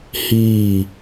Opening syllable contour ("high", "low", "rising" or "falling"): falling